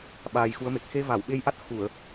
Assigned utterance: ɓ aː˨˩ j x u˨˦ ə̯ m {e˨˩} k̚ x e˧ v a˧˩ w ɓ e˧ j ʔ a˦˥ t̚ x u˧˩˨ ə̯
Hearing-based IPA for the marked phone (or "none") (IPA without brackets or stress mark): e˨˩